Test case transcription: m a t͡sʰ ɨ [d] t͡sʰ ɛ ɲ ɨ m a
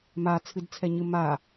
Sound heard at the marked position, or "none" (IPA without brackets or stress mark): d